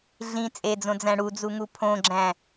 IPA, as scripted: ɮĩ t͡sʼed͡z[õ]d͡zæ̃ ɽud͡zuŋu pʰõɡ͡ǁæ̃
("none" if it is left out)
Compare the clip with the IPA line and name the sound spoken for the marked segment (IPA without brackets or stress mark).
õ